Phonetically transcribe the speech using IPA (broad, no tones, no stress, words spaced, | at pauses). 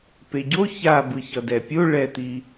peɟo ça bɯçʌdɛpʲo ɭɛt̪i